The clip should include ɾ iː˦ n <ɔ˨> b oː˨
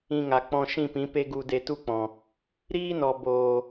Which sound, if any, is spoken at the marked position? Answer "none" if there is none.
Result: ɔ˨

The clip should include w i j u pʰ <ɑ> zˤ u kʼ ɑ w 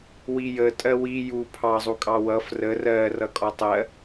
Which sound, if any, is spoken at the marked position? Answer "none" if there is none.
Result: ɑ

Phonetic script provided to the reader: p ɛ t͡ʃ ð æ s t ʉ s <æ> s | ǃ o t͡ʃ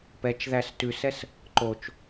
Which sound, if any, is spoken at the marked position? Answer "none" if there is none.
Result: ɛ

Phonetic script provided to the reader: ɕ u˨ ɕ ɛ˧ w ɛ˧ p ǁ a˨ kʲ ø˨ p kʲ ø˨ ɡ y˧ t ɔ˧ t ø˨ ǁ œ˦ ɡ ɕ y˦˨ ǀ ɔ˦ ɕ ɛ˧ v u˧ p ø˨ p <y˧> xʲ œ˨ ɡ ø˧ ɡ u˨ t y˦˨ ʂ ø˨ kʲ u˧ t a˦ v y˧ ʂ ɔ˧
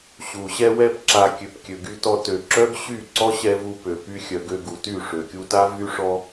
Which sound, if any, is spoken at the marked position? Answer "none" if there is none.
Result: y˧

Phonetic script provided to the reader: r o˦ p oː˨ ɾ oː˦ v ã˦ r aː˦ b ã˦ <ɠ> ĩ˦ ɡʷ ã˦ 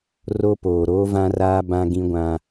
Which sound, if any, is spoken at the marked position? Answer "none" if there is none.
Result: ɡ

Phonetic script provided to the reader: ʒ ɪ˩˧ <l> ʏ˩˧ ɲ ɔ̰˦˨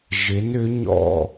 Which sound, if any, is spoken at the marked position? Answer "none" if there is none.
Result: n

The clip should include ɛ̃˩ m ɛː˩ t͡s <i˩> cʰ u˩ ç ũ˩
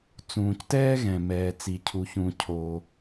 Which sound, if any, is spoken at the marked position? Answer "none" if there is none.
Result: i˩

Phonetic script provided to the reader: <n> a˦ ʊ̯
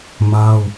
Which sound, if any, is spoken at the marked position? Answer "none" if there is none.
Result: m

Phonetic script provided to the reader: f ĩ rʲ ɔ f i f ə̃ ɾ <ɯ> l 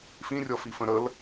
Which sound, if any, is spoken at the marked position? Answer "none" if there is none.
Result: ə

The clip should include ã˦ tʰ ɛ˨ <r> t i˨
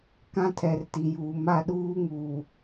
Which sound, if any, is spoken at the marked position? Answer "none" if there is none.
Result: r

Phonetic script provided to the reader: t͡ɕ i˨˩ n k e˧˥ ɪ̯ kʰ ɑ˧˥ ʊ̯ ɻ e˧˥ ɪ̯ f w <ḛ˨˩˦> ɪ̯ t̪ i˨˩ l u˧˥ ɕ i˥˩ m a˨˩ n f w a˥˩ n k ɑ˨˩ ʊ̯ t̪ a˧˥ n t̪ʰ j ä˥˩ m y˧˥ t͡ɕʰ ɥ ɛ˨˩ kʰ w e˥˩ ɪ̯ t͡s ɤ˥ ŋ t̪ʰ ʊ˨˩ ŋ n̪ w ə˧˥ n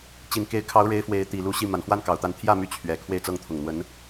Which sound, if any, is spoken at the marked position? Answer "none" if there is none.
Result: e˧˥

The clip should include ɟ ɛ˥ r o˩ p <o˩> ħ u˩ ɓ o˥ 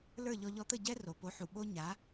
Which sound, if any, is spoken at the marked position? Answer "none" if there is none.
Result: o˩˥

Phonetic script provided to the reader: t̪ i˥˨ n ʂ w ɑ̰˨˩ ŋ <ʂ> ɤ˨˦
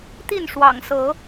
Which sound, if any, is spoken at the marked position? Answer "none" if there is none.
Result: s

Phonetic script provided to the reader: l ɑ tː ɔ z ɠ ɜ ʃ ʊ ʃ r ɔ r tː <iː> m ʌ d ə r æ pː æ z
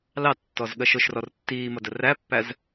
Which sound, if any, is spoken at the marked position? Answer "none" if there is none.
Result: iː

